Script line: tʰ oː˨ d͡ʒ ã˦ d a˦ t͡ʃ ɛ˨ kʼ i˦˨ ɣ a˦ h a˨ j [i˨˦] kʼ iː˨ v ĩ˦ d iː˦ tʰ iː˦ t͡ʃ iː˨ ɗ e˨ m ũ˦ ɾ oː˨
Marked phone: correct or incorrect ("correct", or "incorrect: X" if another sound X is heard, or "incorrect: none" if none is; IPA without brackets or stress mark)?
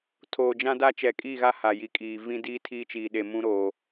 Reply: correct